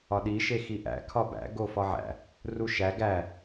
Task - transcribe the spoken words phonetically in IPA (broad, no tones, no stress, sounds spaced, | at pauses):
ɒ ɗ i ʃ e x i ʔ æ̰ kʰ ɒ b æ̰ ɡ o f ɒ ʕ æ̰ | r u ʃ æ ɡ æ